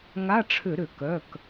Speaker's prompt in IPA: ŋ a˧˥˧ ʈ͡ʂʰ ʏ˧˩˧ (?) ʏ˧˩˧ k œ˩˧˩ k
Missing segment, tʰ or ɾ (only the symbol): ɾ